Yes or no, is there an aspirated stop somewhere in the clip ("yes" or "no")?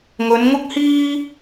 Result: no